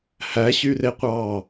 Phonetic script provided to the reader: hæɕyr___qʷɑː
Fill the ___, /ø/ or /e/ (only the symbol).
e